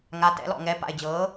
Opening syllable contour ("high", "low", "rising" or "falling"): rising